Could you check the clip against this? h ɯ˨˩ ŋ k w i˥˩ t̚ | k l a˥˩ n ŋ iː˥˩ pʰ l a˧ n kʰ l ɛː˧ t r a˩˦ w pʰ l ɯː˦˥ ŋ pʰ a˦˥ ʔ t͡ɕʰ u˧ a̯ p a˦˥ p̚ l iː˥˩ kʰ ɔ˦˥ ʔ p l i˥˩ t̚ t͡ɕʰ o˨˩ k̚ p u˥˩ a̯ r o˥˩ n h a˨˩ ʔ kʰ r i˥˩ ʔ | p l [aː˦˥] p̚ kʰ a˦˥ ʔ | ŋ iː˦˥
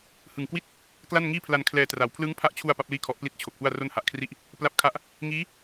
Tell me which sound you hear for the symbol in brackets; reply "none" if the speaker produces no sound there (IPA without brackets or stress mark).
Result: a˦˥